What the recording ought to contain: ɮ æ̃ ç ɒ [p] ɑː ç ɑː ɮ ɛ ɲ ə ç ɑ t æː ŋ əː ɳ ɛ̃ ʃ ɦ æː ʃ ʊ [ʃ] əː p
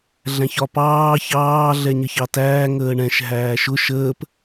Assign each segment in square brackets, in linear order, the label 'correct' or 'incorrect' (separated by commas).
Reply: correct, correct